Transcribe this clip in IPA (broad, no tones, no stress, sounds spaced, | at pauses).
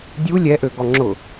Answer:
dʲ u lʲ ɛ ʔ ø ɡ ɔ ŋ͡ǁ ʊ